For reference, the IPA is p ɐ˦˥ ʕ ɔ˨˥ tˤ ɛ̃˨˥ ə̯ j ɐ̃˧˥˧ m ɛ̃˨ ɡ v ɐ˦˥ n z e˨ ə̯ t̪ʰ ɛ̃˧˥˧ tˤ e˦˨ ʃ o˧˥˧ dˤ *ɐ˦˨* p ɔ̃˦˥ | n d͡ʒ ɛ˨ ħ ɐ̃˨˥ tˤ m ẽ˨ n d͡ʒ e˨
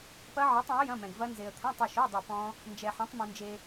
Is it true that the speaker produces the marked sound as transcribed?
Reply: yes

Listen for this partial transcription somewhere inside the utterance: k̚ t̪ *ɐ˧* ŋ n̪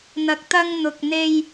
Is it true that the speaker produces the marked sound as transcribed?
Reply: yes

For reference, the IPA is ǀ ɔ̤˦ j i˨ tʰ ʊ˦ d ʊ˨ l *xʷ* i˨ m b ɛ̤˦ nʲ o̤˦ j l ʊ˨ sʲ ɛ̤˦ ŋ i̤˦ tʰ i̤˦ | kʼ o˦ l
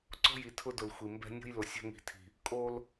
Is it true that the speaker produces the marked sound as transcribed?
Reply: yes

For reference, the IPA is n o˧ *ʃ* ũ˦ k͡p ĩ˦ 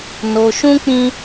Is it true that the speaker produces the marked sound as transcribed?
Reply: yes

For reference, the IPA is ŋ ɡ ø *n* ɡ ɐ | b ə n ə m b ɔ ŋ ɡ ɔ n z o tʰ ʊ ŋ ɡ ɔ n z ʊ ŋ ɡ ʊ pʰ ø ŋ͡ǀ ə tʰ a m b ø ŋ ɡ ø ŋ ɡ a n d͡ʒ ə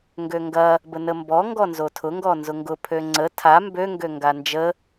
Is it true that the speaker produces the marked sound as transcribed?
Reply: no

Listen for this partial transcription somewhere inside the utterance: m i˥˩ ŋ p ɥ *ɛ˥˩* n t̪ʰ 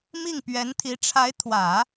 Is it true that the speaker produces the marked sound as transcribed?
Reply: no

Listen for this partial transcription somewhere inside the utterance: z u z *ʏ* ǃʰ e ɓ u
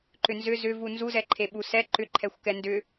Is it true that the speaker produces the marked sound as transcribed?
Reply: no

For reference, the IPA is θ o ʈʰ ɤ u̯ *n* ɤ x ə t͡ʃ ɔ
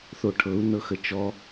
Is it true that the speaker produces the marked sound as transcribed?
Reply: yes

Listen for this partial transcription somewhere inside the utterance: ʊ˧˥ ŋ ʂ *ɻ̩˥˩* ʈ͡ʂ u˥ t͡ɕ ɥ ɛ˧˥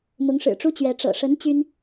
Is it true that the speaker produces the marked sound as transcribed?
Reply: no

